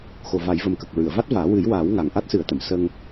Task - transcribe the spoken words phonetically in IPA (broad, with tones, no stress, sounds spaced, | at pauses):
x o˨˩ v a˨˩˦ j v ə˨˩ m k ə˨˩ k̚ ɹ ɨ˨˩˨ ə̯ v a˦˥ t̚ v aː˨˩˦ w ɨ˨˩˦ j w aː˨˩˦ w ŋ a˨˩ ŋ ʔ a˦˥ t̚ s ɨ˨˩˦ ə̯ t̪ ə˨˩˨ m s ə˧ ŋ